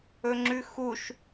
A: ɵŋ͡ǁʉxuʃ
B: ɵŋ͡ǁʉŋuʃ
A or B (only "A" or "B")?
A